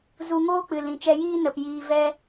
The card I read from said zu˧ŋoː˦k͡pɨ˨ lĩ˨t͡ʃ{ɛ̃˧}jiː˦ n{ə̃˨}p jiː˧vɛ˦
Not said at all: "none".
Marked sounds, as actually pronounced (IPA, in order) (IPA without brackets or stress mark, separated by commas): ɛ˧, ə˨